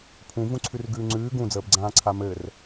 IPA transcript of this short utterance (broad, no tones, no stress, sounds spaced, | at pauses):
pʰ ũ v ũ ǀʰ ʉ r ɡ ʉː ŋ͡ǀ ʉː ɡ ũ d͡z əː b ɡ͡ǀ ãː ǀʰ a m ɘː r